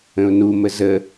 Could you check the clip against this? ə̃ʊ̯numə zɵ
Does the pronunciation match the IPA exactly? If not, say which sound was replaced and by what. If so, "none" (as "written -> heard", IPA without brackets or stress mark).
ɵ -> ə